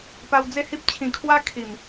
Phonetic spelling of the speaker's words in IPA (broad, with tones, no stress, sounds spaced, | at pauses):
p a˧ w d͡z e˥˧ h i˦ p̚ t͡ɕʰ ĩ˨˩ kʰ w a˦ kʰ i˨˩ m